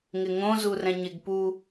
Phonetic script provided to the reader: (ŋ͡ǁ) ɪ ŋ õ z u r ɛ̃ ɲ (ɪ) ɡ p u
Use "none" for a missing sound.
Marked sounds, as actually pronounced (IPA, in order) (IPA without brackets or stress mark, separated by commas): ŋ, ɪ